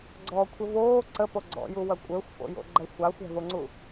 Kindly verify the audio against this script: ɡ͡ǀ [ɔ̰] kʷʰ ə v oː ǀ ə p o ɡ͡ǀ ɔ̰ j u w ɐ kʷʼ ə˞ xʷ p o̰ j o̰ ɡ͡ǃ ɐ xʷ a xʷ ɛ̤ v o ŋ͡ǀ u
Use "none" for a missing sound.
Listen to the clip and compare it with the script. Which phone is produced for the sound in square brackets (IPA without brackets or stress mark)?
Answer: ɔ